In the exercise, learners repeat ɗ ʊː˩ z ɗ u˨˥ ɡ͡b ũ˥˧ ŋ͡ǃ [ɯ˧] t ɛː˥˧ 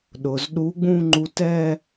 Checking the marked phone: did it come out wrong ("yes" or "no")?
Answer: yes